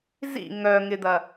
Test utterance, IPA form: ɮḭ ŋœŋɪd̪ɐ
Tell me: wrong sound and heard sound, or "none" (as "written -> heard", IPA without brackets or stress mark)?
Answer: ɮ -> z